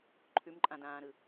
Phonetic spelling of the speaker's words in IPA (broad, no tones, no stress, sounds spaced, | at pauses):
ǃʰ ʉ m ǃʼ ã d ãː ɾ ɯ